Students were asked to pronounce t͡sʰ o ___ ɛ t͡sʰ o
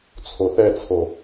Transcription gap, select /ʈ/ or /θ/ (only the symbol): θ